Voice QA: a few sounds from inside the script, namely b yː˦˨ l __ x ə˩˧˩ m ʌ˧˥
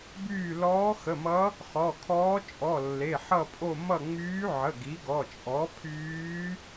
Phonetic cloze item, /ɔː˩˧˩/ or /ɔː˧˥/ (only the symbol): ɔː˧˥